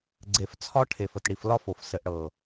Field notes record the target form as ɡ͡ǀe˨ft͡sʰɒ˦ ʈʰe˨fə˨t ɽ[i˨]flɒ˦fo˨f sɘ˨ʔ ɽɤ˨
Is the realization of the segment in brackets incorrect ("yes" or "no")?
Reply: no